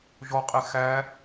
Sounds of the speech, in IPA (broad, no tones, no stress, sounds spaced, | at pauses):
ʒ ɔ qʼ e x æ